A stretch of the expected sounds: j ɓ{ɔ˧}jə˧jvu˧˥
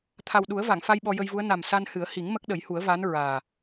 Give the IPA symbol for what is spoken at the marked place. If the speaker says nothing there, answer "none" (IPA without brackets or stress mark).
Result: ɔ˧